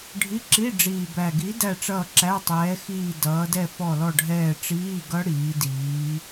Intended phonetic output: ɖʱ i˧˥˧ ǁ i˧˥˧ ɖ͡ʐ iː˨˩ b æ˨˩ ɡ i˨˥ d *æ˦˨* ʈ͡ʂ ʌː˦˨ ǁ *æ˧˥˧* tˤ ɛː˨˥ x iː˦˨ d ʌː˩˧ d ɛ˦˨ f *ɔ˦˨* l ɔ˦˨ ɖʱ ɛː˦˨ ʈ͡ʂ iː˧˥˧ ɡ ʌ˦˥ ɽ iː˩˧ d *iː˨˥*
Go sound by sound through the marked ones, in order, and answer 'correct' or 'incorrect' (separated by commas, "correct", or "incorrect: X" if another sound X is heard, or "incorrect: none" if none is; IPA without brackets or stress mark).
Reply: correct, correct, correct, incorrect: iː˩˧